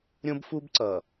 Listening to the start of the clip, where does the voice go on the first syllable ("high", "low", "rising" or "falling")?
high